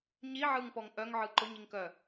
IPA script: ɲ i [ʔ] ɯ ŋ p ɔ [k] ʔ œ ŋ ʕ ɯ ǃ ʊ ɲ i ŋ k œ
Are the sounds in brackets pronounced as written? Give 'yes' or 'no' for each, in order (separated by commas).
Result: no, no